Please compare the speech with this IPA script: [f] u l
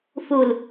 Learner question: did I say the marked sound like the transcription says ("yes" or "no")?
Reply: yes